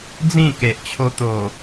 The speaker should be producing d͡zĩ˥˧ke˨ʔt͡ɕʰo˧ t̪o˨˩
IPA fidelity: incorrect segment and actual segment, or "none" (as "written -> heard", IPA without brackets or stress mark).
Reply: none